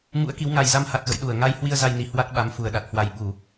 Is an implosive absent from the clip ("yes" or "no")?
no